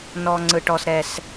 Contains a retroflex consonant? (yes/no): yes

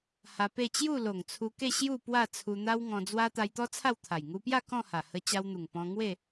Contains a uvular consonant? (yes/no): no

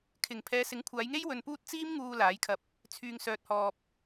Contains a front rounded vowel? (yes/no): yes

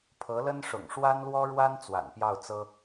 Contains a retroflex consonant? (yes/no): yes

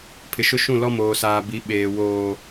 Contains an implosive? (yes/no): yes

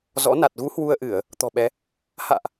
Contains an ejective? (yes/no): no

